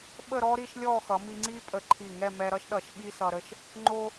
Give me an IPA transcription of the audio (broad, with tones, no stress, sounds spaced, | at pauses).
ɓ ə˥˧ ɾ ɔ˥ ɾ i˥˧ ʃ lʲ ɔ˥˧ x ʌ˩˧ m i˧ ŋ͡ǀ i˥ pʼ ə˧˩ ǃʰ i˧˩ ŋ ɛ˥˧ m ɛ˧ ɾ ʌ˥ ʃ ɗ ʌ˧˩ ʃ ɓ i˥ s ʌ˧ ɾ ə˥˧ ʃ | ŋ͡ǃ o˧